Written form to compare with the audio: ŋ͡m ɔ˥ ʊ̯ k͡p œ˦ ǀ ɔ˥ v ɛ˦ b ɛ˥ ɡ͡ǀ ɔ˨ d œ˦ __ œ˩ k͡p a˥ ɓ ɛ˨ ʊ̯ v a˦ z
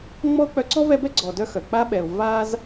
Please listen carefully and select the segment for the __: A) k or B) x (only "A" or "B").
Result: B